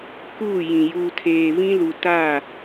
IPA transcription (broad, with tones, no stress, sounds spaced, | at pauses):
k uː˦˨ j ĩ˨ j uː˨ tʰ eː˨ v ĩ˦ l u˨ t a˦˨